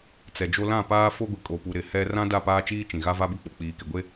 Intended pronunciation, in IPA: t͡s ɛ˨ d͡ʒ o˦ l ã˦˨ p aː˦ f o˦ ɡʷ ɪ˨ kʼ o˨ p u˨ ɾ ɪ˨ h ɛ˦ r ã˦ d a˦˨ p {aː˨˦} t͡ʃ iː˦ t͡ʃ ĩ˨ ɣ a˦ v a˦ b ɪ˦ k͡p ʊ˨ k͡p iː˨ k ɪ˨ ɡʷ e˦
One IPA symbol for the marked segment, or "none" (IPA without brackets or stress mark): aː˦